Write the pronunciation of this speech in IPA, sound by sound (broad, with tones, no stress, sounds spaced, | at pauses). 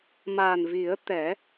m a˨˩ n v i˨˩˦ ə̯ t̪ ɛ˨˩˦